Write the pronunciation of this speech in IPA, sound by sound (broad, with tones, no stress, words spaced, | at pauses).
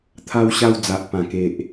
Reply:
t̪ʰa˧wɕa˧wd͡za˨ʔpã˨˩ ke˨ʔ